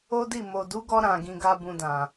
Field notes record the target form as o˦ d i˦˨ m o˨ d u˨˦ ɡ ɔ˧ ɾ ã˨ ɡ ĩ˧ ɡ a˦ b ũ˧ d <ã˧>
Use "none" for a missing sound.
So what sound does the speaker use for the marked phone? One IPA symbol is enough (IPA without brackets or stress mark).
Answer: ã˨